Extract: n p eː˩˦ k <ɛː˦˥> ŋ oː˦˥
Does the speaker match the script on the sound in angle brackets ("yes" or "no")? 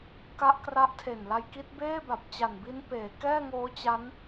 no